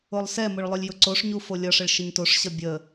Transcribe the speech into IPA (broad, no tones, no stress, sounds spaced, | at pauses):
o lˠ s ɛ m ʊ ɭ lˠ ʊ lʲ j ʊ ǀ o ʂ ɲ u f o lʲ ʌ ʂ ə ɭ ʃ ə ɲ t o ʂ ɕ ʌ bʲ ə